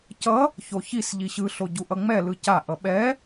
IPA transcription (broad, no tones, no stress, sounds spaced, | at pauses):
c ʌ | ç o ç i s ʎ i ɕ ɯ ɬ o ɟ u ʔ ʌ ŋ͡m ɛ l ɯ c a ʔ ʌ ɓ ɛ